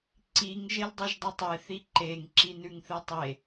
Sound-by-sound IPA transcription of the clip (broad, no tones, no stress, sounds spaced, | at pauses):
ǀ i ŋ ʒ e l dˤ ʉ ʒ dˤ i tˤ e θ i ǃ e ŋ ǁ i n ʉ ŋ θ ɨ tˤ e